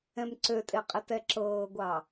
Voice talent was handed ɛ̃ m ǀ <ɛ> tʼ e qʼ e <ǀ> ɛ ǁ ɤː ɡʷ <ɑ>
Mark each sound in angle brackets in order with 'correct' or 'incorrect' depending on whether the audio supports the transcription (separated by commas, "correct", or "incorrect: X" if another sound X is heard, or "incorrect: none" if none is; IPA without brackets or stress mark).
incorrect: ø, incorrect: t, correct